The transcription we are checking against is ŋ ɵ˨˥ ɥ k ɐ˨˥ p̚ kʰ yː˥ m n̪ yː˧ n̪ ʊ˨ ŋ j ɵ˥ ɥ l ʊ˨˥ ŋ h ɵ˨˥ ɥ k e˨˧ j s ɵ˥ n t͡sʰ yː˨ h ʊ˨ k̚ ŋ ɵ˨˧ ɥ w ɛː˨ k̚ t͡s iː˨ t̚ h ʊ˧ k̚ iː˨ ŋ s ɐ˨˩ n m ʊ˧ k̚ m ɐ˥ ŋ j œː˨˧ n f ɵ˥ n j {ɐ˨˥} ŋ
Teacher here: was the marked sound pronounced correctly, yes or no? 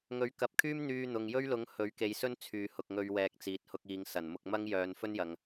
no